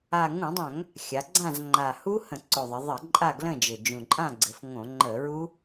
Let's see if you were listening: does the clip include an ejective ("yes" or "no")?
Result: yes